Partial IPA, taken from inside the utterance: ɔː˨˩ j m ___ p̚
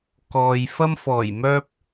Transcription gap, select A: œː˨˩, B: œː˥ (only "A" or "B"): B